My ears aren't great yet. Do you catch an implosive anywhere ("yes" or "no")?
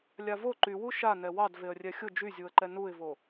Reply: no